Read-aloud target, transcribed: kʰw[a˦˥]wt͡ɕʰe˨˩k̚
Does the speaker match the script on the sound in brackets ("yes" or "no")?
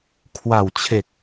no